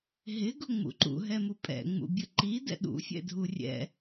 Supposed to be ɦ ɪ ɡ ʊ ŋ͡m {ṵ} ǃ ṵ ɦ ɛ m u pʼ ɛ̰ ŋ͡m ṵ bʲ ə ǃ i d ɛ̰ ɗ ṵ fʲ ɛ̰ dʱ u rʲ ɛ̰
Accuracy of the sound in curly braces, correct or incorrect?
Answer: correct